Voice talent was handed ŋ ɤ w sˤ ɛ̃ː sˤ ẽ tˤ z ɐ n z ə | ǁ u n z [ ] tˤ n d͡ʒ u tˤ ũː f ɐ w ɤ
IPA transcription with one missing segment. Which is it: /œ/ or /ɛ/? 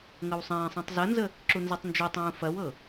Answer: ɛ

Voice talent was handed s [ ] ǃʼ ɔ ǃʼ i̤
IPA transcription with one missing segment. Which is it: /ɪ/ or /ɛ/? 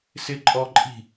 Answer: ɪ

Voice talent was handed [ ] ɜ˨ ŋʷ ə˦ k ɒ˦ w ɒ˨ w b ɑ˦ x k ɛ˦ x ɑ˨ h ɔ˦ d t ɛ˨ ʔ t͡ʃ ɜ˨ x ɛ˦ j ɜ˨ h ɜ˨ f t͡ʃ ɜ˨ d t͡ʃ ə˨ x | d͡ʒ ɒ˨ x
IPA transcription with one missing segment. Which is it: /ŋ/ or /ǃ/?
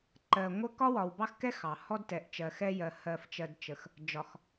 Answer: ǃ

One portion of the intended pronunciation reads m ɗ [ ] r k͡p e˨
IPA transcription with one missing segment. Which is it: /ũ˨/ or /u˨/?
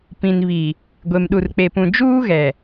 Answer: u˨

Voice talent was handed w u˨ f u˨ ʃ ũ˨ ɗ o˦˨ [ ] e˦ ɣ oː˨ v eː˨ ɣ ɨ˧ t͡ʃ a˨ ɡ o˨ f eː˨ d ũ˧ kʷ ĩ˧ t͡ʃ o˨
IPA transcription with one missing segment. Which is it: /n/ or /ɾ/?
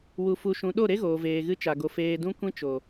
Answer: ɾ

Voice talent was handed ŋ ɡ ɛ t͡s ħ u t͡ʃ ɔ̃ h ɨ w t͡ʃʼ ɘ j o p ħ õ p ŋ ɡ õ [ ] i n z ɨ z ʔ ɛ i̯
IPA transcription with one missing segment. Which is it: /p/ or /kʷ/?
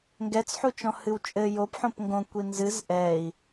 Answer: kʷ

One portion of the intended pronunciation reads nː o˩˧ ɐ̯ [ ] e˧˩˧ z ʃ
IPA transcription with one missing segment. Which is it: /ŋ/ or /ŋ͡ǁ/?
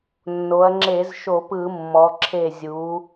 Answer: ŋ͡ǁ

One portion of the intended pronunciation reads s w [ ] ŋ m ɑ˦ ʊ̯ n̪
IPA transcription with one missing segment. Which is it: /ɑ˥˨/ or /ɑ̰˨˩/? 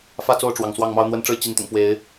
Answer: ɑ˥˨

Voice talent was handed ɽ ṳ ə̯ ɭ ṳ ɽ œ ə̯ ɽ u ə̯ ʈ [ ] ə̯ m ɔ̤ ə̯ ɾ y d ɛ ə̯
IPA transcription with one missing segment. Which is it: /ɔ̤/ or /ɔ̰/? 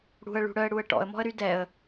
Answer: ɔ̰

